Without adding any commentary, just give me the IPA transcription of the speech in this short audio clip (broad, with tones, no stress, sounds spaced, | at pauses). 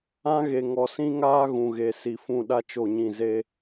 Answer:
ã˦ ɣ e˨ ŋ ɔ˨ s ĩ˦ ŋ aː˦ ɣ ũ˨ ɣ e˨ s i˨ f ũ˦˨ ɗ a˦ t͡ʃ o˦˨ ɲ ĩ˦˨ z e˦